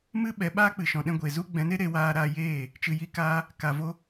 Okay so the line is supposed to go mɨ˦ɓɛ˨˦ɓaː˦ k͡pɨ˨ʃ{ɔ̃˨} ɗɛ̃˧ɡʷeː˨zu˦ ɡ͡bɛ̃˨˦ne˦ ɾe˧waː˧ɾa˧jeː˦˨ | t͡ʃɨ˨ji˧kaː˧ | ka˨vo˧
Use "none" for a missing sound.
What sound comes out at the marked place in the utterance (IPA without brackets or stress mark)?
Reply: ɔ̃˨